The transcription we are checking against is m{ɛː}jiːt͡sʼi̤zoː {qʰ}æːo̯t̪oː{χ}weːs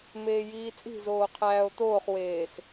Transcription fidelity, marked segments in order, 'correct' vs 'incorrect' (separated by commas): incorrect, correct, correct